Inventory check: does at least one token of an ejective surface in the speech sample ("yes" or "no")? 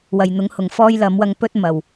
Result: no